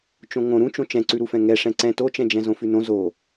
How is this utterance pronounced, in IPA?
t͡ʃ õ ŋ õ ɾ ũ t͡ʃ õ t͡ʃ ɛ̃ ǀ ʉ ɾ u f ɛ̃ ŋ ɛ ʂ ɛ̃ ǀ ɛ̃ t o t͡ʃ ɛ̃ d͡ʒ ɛ̃ z õ f ʉ n õ z o

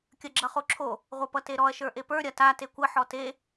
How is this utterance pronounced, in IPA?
kʲ ɐ ɡ͡ǁ ʌ χ o ǁʰ o | ʁʷ ʌ p ʌ t e ɾ ɔ ɐ̯ ʃ ə˞ ʔ e p ə˞ ɾʲ ɐ t a t e kʷ ə ħ ɔ t e

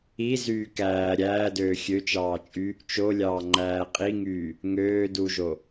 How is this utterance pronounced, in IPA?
i z yː k æː ɾʲ æː d øː xʲ ø t͡ʃ ɑː t͡ʃʼ y | t͡ʃ o lʲ ɑː ŋ͡ǃ æː qʼ i ŋ yː | ŋ øː d u ʒ o

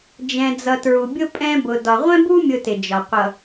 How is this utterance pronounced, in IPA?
d͡ʒ ɛ̃˨ d͡z ʌ˨ t ɹ u˨ bʲ ʊ˦ pʼ ɛ̃˦ b ʊ˨ d ɒ˨ ʁʷ ɛ̃˦ b u˦ mʲ ʊ˨ t ɪ˨ d͡ʒ ɒ˨ qʷ ʌ˨

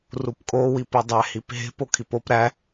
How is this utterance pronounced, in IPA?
r u p kʼ o w i p i dˤ æ h i p ɦ e̤ p o kʰ i p o p ɾ æ

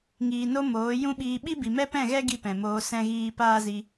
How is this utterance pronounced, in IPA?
ŋ iː˨ n o˧ m oː˨˦ j ũ˦ ɓ iː˧ ɓ i˦ b i˨ m ɛ˦ p ɛ̃˦˨ ɣ ɛ˦ ɡ i˦ p ɛ̃˨ m oː˧ s ɛ̃˦ ɣ iː˦ p aː˦ z i˧

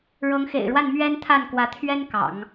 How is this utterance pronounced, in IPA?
ɻ ɤ˧˥ ŋ x ḛ˨˩ ɪ̯ ɻ w a˥˩ n m ɥ ɛ˥ n t̪ʰ a˥˩ n k w ä˧˥ t̪ʰ ɥ ɛ˥ n k ɑ̰˨˩˦ ŋ

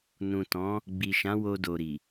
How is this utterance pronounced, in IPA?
n ũ˨ t ɔ̃˨˦ | ɡ͡b i˨ ʃ ã˨˦ w o˧ d o˨ ɾ i˨

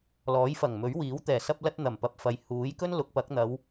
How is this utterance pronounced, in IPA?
l ɔː˨˥ j f ɐ˨˩ ŋ m ɵ˨˥ ɥ w iː˨˥ w t̪ ɛː˨˩ s ɐ˧ p̚ l ɐ˧ t̚ n̪ ɐ˨˩ m p ɐ˨ p̚ f ɐ˨ j h uː˨˥ j k ɵ˥ n l ʊ˨˥ k̚ p ɐ˨˥ k̚ n̪ ɐ˨˧ w

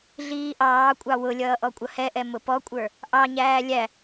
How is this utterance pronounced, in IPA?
ɮ iː ʔ ɑː kʷʼ ɑ w ʊ lʲ ʌː ʔ ɔ kʷʼ ʌ h ɛ ʔ ɛ m ʊ p ɔ kʷʼ ə˞ | ʔ ɑ ɲ æː lʲ æ

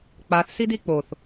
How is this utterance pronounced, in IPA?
k͡p a θ s i d i k͡p o θ

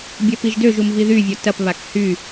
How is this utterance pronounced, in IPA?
bʲ ɐ p i ʒ d ø ʒ u m v i ð y vʲ ɔ t ɐ p β a k h y

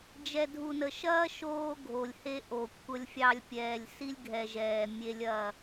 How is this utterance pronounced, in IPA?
d͡ʒ ɛ˨ dʱ u˨ n ə˨ ʃ ɐː˦ ʃ oː˦ ɡʱ o˨ lʲ h e˦ ʔ o˨ kʷʰ ə˦ lʲ fʲ ɑ˦ lʲ pʲ ɛː˨ lʲ s i˦ lʲ ɡʱ ɛ˨ ʒ ɛː˨ mʲ e˦ lʲ ɐː˦˨

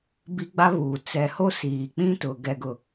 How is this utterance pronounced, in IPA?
b i˦ ɡ͡b a˦ β uː˨ t͡s ɛ˨ h o˦ s iː˨ k͡p ĩ˦ t ʊ˨ ɡ ɛ˨ ɡ ʊ˨

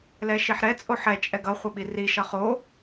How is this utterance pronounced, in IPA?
l ɛ ʃ i ħ ɾ ɛ t͡sʼ o ħ ɛ t͡ʃʼ ɛ ɡ ʌ χʷ ʌ ɓ i r i ʃ ʌ χ o

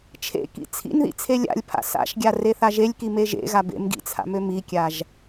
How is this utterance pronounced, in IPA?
t͡ʃʰ ḛ k ḭ t͡sʰ ḭ n ð ḭ t͡sʰ e lʲ a̰ lʲ pʰ a̰ s a̰ ʃ ɡʲ a r e θ a ʒ e lʲ k i m e ʒ ḛ ɣ a b ḛ m ɡ ḭ t͡sʰ a̰ m ø m i kʲ a ʒ

